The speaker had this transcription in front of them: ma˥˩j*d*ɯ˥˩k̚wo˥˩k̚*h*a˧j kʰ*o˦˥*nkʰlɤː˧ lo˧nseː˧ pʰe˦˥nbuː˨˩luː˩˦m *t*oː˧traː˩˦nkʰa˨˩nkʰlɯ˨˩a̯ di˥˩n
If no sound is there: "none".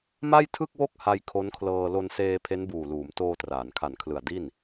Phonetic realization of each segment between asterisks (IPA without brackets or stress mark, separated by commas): tʰ, h, o˦˥, t